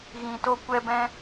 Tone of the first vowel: low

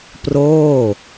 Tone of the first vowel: falling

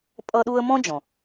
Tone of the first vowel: high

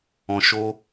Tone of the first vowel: low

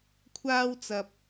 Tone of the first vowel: high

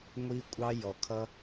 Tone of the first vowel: high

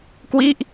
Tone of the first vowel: falling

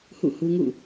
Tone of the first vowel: falling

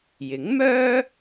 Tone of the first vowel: rising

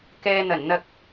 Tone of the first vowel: low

